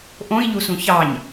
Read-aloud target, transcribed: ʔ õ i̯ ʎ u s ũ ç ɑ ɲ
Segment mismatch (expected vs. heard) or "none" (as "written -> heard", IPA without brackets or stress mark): none